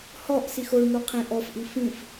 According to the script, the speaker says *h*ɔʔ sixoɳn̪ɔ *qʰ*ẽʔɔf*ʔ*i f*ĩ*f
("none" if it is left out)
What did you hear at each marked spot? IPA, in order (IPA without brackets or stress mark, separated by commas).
h, qʰ, ʔ, ĩ